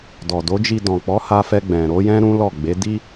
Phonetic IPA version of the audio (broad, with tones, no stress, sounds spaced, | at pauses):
d ɔ˨ d o˨˦ d͡ʒ i˧ d ɔ̃˨ k͡p ɔ˨˦ h a˧ f ɛ˧ ɡ͡b ɛ̃˨ ɾ o˨˦ j ɛ̃˦ ɾ ũ˦ l ɔ˦˨ ɡ͡b e˨˦ d i˦